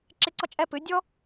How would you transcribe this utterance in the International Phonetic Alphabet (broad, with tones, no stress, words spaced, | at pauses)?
ǁɪ˦ǀɔ˦ t͡ʃʼɛ˦pɨ˨˦ dʲɔ˦